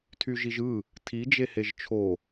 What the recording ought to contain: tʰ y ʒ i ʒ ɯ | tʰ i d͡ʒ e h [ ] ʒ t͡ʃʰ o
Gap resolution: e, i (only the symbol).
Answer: e